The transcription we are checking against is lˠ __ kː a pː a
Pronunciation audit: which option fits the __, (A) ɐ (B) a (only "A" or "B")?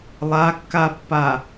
B